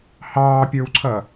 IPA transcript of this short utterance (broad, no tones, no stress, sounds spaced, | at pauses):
h ɑː pʲ ə˞ w ǀʰ ʌ